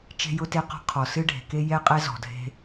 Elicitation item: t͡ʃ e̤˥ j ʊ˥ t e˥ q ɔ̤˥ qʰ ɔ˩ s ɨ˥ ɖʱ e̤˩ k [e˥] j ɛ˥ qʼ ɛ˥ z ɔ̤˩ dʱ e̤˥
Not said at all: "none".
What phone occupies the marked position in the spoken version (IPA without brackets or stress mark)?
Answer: e˥